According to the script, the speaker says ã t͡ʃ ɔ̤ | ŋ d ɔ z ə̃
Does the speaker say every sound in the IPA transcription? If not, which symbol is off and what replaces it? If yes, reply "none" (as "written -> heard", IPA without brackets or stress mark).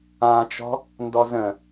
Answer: ŋ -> n